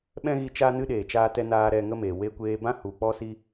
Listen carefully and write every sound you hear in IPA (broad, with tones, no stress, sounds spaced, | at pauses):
ɓ ɛ̃˦ ɣ i˧ t͡ʃ aː˧ n ɨ˧ ɗ eː˨ t͡ʃ aː˧ t ɛ˧ n aː˧ ɾ ɛ˧ ŋ ə˦ m eː˨ w e˧ kʷ eː˧ b ã˦ h u˨ k͡p ɔ˦ s i˦